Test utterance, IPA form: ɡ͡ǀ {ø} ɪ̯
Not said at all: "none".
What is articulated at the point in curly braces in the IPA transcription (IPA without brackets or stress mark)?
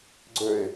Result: ø